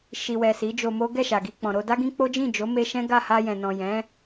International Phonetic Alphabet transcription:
ʃi˨wɛ˨ si˨˦d͡ʒo˧mo˦ ɡɛ˦˨ʃa˨ɡi˧ k͡pɔ̃˨ɾo˧da˦ ɡĩ˦k͡po˦ d͡ʒĩ˦˨d͡ʒo˨˦me˧ ʃɛ̃˦ɡa˦˨ ha˧jɛ̃˨nɔ̃˨ jɛ̃˨˦

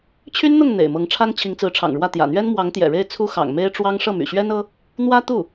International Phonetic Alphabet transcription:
t͡ɕʰy˥nn̪ʊ˥˩ŋ n̪ḛ˨˩ɪ̯mɤ˧˥ŋʈ͡ʂʰa˥n t͡ɕʰi˧˥ŋt͡sɹ̩˧˥ʈ͡ʂʰɑ̰˨˩ŋɻwä˥˩ t̪jä̰˨˩n̪ɥɛ˥n mwɑ˧˥ŋt̪jɛ̰˨˩ɻe˥˩ɪ̯ t͡sʰu˥xɑ̰˨˩ŋ me˥ɪ̯ʈ͡ʂwɑ˥ŋ ʂɤ˥˩my̰˨˩ ɕɥɛ˥nɤ˥ | n̪wä˥t̪u˥˩

